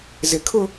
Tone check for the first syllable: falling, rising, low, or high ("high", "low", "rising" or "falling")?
low